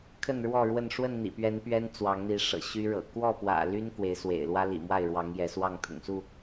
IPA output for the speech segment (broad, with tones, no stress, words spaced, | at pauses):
kʰə˥˨nɻwɔ˥˨ɻwə˥˨n ʂwə˥˨nn̪ḭ˨˩pɥɛ˨˦n pɥɛ˦nt͡swɑ˨˦ŋ n̪i˨˦ʂɤ̰˨˩ ɕy˦ɻɤ̰˨˩ kwɔ˥˨pwä̰˨˩ ly˦n kwe˨˦ɪ̯swḛ˨˩ɪ̯lwä˦ lḭ˨˩mwa˥˨ɪ̯ɻwɑ˨˦ŋ jɛ˨˦swɑ˥˨ŋ t̪ʰʊ̰˨˩ŋsu˥˨